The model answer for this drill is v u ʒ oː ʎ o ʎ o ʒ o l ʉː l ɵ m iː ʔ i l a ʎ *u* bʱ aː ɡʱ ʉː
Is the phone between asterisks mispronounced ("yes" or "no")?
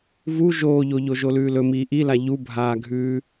no